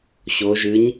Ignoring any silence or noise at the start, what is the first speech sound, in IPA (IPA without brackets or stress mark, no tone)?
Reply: ɕ